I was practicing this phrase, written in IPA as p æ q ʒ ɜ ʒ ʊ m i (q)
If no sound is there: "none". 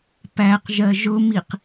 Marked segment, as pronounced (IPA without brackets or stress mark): q